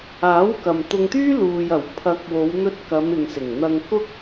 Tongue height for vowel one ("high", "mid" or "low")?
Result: low